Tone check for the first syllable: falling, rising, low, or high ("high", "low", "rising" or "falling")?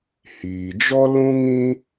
low